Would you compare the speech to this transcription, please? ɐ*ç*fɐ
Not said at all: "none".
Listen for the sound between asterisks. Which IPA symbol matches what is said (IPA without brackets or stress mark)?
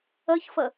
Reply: ç